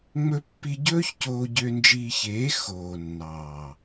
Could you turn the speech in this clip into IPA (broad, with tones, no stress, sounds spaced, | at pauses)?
ŋ͡m ɵ˧ pː i˧ ɟ ɵː˦ ç c oː˧ ɟ ø˧ n d͡ʒ iː˧ ç eː˨˦ x oː˨ nː ɑː˨